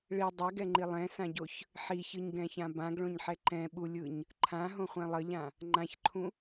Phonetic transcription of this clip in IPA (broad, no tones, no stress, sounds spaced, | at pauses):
ɭ i dˤ ɛ ɡ ɛ ŋ͡ǃ i lˠ ɛ̃ s ã ɟ o ç | ħ i ç ɯ ɲ ɡ ɛ̃ ç ã b ã ɡ ɭ õ ɲ ħ ɛ ǃ ɛ̃ ɓ u lʲ ɯ ɲ | ǃʰ ã ɦ õ χʷ ɛ̃ lˠ ʌ ʎ ã | ŋ͡ǃ ã ç ǃʰ ũ